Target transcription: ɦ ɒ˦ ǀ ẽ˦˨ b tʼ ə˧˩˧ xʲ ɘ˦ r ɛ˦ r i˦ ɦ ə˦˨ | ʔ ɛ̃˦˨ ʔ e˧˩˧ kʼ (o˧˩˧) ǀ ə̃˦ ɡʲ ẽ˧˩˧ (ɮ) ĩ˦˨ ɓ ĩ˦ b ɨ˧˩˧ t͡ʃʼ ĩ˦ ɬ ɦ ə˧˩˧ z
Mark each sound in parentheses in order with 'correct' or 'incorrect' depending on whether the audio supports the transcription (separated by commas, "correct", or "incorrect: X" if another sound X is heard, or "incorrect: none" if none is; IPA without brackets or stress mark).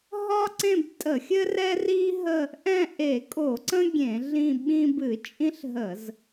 correct, correct